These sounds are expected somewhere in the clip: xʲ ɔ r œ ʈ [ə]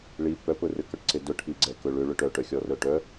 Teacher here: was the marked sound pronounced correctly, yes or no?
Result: no